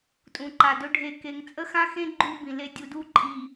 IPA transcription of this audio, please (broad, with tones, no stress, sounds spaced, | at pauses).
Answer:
tʼ ũ˨ ǃ a˨ d ɵ˦ ɖʱ e˨ k e˨ ŋ t͡sʼ ə˦ x ã˦ x ẽ˦ ɡ͡ǃ u˦ b ĩ˨ l e˦ dʲ u˨ d u˦ ǃʼ i˨